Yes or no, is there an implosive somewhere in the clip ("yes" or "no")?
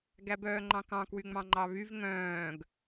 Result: no